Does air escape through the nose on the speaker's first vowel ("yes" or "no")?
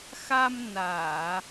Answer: no